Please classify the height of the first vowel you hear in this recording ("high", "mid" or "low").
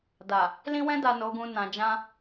low